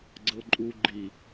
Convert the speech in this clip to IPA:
ɡ͡ǀɤǃʼu ɡ͡ǃi

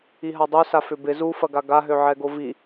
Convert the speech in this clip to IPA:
iɦadˤøsa fʏbɪ zufɐɡa ɡaɦø ʕɛɡovi

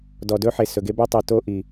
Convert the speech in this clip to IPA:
dɔ˨dɵ˦ħe˨ sɵ˨ɡe˦ bɵ˧tˤi˨ to˧ ʔi˨

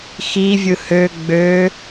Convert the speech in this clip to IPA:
xivʲɯ hø ɡ͡bø

